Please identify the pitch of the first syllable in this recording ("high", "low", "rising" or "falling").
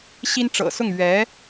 high